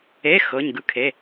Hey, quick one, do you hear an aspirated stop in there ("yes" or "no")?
yes